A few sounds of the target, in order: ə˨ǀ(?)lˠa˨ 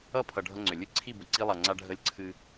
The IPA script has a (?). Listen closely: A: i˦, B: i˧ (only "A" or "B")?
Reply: B